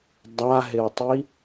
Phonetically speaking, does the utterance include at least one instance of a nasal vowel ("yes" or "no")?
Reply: no